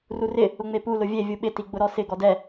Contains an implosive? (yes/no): yes